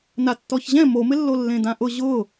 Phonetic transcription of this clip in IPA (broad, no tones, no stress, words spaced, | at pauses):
natːɔçʑɛ̃ momɪlːo lːẽdãʔʊ ʑʊː